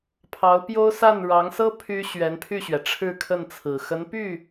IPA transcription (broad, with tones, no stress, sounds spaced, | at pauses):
pʰ ɑ˧˥ ʊ̯ p j o˥ ʊ̯ s a˥˩ n ɻ ɑ˧˥ ŋ s ɤ˥ pʰ y˥ ɕ ɥ ɛ˧˥ n pʰ y˥˩ ɕ ɥ ɛ˩ ʈ͡ʂʰ ɻ̩˥˧ kʰ ə˥˩ n t͡sʰ ɹ̩˨˩ x ə˧˥ n p y˥˩